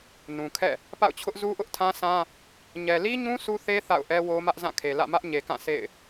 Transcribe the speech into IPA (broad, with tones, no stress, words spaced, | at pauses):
nũ˨kʰɛ̰˦˨ | pa̰˦˨ʊ̯t͡ɕʰʊ˦ʔ zu˦ʔʊ˦ʔtʰã˦sã˦ | ɲɛ˨li˦ɲũ˦ su˦θe˦ θa̰˦˨ʊ̯ʔɛ˦wo˦ mä˦ʔzã˦˨kʰe˨lä̰˦˨ mä˦ʔɲe˨kã˦˨ sḛ˦˨ɪ̯